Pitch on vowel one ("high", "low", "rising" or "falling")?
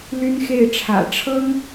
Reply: high